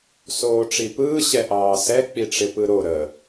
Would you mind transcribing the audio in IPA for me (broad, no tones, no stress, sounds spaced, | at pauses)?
s oː ʈ͡ʂ i p ɯː ɕ ɛ ʔ ɑː s ɛ k͡p i ʈ͡ʂ ɪ p ɯ ɾ o ɾ ə